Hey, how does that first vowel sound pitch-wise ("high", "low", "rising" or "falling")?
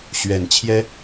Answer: low